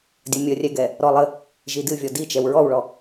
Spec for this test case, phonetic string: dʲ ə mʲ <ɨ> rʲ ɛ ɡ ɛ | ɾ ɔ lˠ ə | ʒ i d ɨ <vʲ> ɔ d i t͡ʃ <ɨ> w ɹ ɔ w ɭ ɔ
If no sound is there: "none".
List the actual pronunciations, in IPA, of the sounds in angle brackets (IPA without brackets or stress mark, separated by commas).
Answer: ə, vʲ, ɛ